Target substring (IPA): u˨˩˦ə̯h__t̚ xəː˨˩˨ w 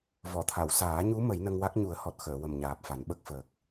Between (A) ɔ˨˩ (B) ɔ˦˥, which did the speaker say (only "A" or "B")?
A